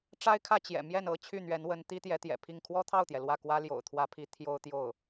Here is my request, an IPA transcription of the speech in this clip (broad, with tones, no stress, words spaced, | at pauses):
ʈ͡ʂa˥ɪ̯kʰä˥˩ t͡ɕjɛ̰˨˩ mjɛ˥˩nɤ˥ t͡ɕʰy˥˩n̪ɥɛ˧˥nwə˧˥n t̪i˥t̪jɛ˧˥t̪jɛ̰˨˩pʰi˥˩ŋ kʰwɔ˥t̪ʰɑ˥˩ʊ̯t̪jɛ˩ lwä˥˩kwä˥ ljo̰˨˩ʊ̯t̪ʰwä˧˥pʰi˧˥ t̪ʰjo˥ʊ̯ t̪jo˥˩ʊ̯